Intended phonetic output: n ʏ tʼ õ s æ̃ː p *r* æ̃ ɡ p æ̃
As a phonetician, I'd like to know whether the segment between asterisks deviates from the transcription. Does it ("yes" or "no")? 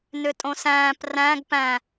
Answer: no